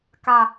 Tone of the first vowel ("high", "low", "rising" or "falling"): low